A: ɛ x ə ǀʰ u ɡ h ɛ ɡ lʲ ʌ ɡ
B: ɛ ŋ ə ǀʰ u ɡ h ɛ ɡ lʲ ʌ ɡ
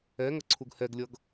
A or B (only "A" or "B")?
B